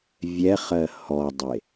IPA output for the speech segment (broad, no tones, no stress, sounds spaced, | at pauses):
vʲ ɛ χ ɜ h ɔ dˤ e